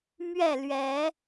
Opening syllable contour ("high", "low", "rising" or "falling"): falling